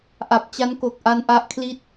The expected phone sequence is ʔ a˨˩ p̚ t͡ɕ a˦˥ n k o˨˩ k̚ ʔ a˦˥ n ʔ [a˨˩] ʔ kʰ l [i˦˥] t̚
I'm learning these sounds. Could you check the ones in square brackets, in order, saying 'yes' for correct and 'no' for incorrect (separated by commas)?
no, no